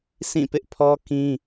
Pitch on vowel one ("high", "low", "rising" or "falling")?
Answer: falling